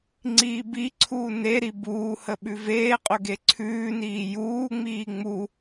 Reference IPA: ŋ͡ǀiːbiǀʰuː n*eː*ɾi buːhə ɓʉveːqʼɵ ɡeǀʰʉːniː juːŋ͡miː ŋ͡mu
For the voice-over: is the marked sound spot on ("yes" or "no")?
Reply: no